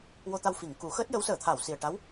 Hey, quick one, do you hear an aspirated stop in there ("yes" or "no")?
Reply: yes